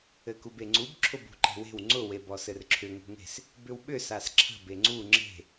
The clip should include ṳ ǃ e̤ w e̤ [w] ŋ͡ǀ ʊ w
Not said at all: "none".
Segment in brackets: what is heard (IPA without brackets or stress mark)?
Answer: w